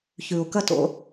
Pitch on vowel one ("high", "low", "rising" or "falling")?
low